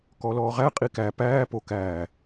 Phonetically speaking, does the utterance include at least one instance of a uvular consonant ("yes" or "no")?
yes